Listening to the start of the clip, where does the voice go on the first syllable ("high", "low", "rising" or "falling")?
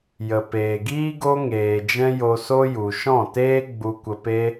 low